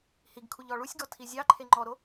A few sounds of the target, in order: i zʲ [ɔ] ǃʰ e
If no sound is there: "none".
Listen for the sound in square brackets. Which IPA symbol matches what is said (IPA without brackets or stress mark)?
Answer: ɑ